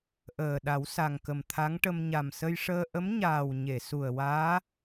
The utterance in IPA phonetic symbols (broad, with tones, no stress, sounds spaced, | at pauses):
ʔ əː˨˩ ɗ a˨˩˦ w s a˨˩ ŋ k ə˨˩ m t̪ʰ a˧˥ ŋ ʈ ə˧ m ɲ a˨˩ m s ə˧ j ʂ əː˧ ʔ ə˧˥ m ɲ aː˨˩ w ɲ e˨˩˨ s u˨˩ ə̯ w aː˧˥